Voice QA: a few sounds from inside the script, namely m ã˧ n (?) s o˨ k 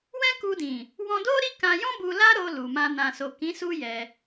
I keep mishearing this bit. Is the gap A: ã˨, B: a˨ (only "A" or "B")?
A